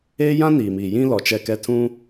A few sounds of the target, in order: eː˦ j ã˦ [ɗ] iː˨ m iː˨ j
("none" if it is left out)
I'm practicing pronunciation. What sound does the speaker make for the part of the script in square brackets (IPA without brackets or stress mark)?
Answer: n